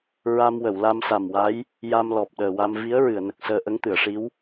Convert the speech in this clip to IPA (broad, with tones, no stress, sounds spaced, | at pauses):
ɹ a˧ m w ə˨˩˨ w l a˧ m s a˨˩ m w a˧˥ j | j a˧ m l ɔ˨˩ p̚ ɗ əː˨˩ w a˧ m v i˧˥ ə̯ ɹ ɨ˨˩˨ ə̯ n ə˨˩ k̚ s əː˧ ʔ ə˧˥ ŋ t̪ ɨ˨˩˨ ə̯ ʂ i˧˥ w